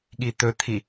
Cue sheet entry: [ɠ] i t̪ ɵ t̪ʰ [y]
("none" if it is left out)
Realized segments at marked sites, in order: ɠ, i

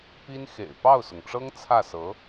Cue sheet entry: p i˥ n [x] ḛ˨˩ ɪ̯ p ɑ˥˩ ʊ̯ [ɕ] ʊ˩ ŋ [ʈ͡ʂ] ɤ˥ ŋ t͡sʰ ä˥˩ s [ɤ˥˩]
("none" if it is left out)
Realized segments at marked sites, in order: x, s, ʈ͡ʂ, ɤ˧˥

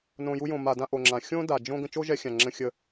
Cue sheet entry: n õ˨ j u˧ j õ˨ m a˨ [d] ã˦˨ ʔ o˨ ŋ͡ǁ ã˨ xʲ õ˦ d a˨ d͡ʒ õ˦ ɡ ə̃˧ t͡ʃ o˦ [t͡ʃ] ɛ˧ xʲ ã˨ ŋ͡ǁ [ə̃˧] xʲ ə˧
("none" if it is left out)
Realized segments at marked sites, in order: d, ʒ, ə̃˧

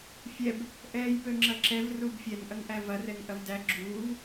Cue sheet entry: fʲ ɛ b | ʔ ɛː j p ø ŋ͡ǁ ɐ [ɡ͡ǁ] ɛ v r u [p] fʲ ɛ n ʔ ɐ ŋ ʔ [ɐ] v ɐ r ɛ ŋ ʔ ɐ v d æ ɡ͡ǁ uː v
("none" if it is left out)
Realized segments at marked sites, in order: ǁ, b, æ

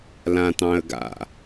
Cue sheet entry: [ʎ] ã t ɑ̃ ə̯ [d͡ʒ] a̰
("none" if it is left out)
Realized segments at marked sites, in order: l, ɡ

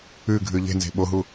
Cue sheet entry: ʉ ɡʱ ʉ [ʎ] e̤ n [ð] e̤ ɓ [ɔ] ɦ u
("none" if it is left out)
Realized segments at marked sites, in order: ʎ, z, o

